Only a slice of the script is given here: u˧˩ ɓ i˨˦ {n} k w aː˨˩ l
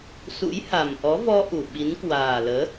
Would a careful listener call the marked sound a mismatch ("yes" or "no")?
no